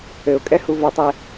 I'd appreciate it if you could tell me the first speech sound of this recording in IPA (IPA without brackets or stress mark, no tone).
ɘ